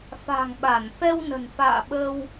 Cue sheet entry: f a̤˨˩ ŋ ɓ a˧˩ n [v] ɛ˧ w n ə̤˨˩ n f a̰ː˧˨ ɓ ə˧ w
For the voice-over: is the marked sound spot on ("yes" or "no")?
no